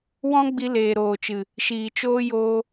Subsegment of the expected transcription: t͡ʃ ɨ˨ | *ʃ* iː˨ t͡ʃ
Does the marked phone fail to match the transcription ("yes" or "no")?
no